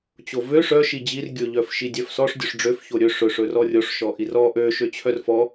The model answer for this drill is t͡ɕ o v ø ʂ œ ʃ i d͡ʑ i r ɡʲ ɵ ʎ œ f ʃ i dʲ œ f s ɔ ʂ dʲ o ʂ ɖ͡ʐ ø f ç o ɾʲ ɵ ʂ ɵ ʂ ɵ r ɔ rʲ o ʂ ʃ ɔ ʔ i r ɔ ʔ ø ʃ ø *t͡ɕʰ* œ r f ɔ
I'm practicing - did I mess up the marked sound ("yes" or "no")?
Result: no